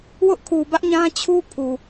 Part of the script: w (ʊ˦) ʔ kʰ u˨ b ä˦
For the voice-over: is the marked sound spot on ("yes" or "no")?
yes